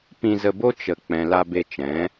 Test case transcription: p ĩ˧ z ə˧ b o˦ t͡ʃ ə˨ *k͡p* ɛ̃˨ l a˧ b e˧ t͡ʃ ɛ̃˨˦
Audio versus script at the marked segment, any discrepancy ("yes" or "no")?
no